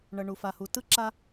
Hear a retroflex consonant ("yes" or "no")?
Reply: yes